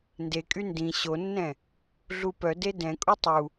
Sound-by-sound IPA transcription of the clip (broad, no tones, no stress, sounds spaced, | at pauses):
n d e kʼ y n d ĩ ɕ o nː ɛ̃ | ɮ u p œ d e d ɛ̃ kʼ u tˤ u